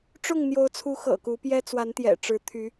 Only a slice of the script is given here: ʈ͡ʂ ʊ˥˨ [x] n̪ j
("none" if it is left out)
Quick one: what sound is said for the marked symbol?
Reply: ŋ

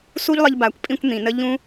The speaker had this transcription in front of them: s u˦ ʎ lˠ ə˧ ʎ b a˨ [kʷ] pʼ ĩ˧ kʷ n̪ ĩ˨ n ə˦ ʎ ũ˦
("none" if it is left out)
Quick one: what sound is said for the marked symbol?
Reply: kʷ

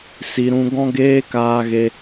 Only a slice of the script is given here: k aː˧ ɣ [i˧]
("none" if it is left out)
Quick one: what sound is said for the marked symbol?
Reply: e˧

